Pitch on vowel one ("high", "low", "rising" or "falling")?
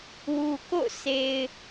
low